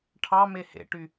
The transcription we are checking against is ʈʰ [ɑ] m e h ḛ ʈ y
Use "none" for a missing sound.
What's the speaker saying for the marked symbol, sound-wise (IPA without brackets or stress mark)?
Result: ɑ